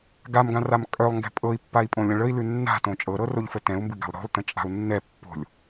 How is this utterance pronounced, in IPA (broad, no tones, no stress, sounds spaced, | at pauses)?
ɡ a m ɡ ã r a m kʼ œ lˠ ŋ ɡ ɛ̤ pʼ ɤ i̯ pː a i̯ pʼ õ lʲ ə̃ ɭ ə i̯ l ʉ nː a̤ t õ t͡ʃʼ ɤ ɾ ɤ r o ʎ f ə t ɛ̃ u̯ m b ɨ ɡ a̤ lˠ ɾ o̤ lˠ t ə̃ t͡ʃʼ a̤ u̯ nː ɛ pː o̤ lʲ